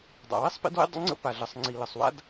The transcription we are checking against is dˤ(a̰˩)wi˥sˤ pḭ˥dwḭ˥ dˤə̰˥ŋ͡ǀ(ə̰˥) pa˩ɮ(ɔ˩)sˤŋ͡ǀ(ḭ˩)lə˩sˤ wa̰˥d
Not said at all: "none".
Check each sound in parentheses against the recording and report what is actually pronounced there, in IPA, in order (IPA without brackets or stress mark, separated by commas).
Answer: a̰˩, ə̰˥, ə˩, i˩